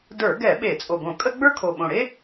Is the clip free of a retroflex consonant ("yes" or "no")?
no